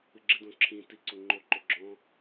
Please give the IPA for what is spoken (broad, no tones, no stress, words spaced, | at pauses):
ɨɡ͡ǁɪdõ ǁʰĩti ǀoŋ͡ǃoǃo ɡ͡ǁɔ̃